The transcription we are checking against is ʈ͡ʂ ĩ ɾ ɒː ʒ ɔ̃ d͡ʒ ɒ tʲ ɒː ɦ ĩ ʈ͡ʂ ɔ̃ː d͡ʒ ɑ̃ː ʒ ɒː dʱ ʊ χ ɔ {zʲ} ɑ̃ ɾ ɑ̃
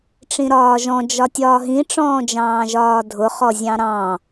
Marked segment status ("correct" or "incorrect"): correct